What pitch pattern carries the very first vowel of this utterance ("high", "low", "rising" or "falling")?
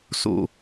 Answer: low